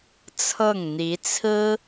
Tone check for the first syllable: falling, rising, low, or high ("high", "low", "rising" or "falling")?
falling